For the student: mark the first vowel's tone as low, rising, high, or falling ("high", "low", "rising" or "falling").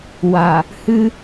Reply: low